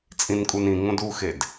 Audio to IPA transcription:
t͡sʼĩnkʼunĩŋõd uxed

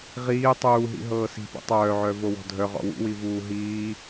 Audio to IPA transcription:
ʁiː tˤuːɦḭ ɦɤːsi̤pṵ tˤœːʕœ vowɔ̤dʱœ ʁɔ̰wṵwi vuːɦiː

